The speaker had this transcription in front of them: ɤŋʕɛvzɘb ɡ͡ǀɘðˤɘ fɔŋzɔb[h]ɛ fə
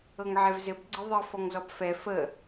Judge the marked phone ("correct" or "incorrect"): incorrect